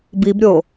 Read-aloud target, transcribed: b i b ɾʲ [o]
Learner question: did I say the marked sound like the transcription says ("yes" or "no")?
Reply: yes